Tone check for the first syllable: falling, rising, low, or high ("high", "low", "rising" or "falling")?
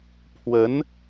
rising